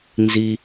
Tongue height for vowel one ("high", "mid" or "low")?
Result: high